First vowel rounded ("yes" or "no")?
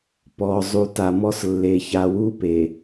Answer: yes